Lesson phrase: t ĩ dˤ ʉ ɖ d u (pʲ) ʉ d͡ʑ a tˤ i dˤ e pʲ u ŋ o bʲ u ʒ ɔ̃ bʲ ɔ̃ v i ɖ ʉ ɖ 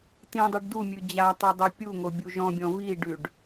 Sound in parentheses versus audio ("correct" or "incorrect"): incorrect